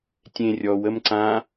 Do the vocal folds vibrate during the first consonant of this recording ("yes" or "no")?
no